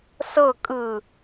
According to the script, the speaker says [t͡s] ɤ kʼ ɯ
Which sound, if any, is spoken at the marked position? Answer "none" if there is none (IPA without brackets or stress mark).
s